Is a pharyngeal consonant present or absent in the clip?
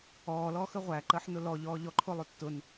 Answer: present